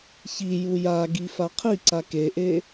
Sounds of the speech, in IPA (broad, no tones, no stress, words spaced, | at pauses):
çi jujaɡi faqʰiǀa keʔe